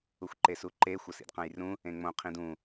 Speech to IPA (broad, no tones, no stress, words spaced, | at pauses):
uxʷǃesuǃe xʷɐsḭdqɐ̃jrũ | ẽŋ͡mõ qʰĩdũ